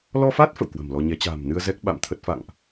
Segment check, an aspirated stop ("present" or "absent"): present